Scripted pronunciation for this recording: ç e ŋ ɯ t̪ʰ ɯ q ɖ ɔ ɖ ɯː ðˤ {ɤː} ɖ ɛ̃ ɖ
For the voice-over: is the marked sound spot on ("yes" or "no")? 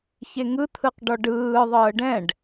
yes